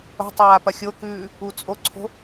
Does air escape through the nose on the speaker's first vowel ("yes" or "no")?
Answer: no